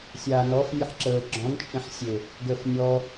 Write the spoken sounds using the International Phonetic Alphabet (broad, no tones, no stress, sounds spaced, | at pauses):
sʲ aː n ɔ f nʲ ə ħ ǁ əː ɡ͡ǁ ɔ̃ n t͡ʃʼ ẽ ħ sʲ e | ɡ əː f nʲ ɔ